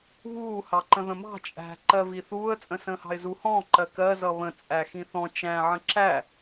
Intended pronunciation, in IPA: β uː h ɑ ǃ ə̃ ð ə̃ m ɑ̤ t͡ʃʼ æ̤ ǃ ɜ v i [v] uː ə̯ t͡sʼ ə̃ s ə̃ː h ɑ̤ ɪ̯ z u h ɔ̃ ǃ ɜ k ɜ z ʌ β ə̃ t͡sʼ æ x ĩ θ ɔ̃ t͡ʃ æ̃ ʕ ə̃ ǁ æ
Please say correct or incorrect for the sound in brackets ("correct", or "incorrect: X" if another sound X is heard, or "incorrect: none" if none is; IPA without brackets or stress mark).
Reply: incorrect: θ